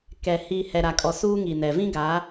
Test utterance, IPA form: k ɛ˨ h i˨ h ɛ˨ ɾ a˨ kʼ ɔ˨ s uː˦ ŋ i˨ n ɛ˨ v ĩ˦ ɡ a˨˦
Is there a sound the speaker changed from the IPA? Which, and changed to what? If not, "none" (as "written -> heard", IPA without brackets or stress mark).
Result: none